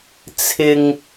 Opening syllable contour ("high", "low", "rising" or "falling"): low